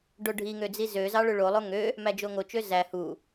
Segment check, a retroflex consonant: present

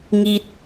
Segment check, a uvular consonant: absent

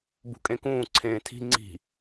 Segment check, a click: present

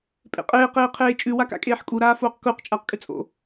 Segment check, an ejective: present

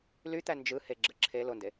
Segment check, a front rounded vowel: present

